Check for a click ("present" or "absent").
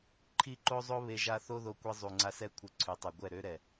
present